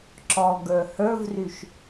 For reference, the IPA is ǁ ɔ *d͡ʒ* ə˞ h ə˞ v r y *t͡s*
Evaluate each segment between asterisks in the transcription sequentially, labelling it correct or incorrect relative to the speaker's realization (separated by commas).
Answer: incorrect, incorrect